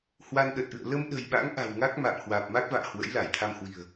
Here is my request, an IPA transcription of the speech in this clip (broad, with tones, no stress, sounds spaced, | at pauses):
h w a˧ n ɗ ə˨˩ t̚ ʔ ɨ̰˧˨ ə̯ l ə˧ m ɗ ə̤˨˩ j ɓ a̰˧˥ ŋ ʔ a̤˨˩ w ŋ a˦˥ k̚ m a̰ː˧˨ m h w aː˨˩ p̚ m a˦˥ k̚ v a̰ː˧˨ h w ə̰˧˥ j l a˧˩ j t̪ʰ a˧ m h w i̤˨˩ ə̯